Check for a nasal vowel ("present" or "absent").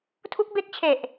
absent